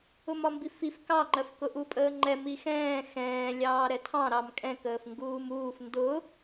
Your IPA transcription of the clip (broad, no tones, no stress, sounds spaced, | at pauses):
ʊ m ɒ m b i f i f k ɑ ŋ͡ǃ ɜ f k ʊ ʔ u pʼ əː ŋ͡ǃ ɛ m i x ɛ̃ː x ɛ̃ː lʲ ɑː ɾ ɛ tʰ ɑ̃ ɾ ɑ m kʼ ɛ̃ k əː f ŋ ɡ uː m uː f n d ʊ